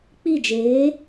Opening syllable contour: falling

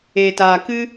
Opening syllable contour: low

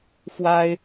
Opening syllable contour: high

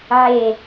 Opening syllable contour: falling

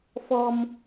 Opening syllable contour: high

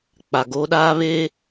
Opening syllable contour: low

